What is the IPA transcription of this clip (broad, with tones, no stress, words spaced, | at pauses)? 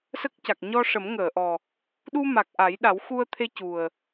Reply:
sə˦˥k̚ca˨˩k̚ ɲɔ˧ʂə˨˩˦mŋəː˨˩˨ʔɔ˨˩ | ɗu˧ma˨˩k̚ʔa˨˩˦jɗa˨˩˦w xu˧ə̯t̪ʰe˧cu˨˩ə̯